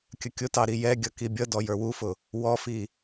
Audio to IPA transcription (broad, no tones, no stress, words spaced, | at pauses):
kʲəkʲʊtɑɾi jɛɡʲʌki bʲʌ dɔjə˞wufʊ | wɔfi